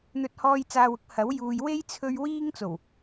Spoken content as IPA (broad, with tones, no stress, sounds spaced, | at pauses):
n̪ ɵ˧ t̚ h ɔː˧ j t͡s aː˨ w ʊ˥ k̚ h ɐ˨˥ w j uː˨ j w e˥ j t͡sʰ ɵ˧ ɥ w iː˥ ŋ t͡s o˨˩ w